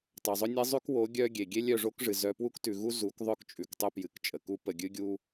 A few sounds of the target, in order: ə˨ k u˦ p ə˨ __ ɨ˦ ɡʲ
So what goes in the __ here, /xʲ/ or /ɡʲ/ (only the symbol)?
ɡʲ